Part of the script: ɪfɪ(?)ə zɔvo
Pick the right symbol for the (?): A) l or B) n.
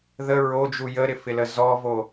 A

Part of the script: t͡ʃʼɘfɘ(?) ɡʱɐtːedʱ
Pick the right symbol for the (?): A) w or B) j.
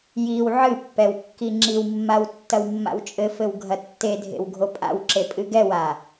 A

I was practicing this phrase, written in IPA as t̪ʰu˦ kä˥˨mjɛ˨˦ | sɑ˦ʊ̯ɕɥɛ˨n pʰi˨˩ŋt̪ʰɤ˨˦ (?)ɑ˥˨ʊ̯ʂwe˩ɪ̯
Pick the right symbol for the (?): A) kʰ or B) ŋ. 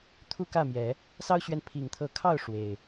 A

